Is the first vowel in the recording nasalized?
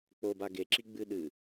no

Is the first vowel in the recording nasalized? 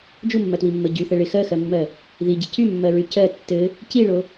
no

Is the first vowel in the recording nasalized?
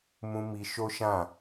yes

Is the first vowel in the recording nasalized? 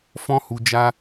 yes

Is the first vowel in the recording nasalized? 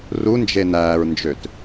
no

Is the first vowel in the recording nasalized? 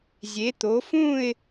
no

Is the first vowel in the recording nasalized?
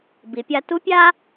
no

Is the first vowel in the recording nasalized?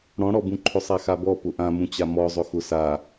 yes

